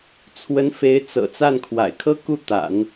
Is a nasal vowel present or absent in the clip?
absent